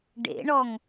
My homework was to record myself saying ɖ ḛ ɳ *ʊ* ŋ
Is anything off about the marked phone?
yes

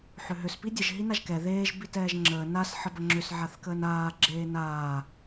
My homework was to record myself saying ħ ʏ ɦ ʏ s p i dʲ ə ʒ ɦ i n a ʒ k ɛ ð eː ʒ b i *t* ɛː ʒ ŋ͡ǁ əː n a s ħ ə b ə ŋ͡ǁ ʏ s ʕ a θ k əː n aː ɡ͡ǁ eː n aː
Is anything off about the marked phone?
no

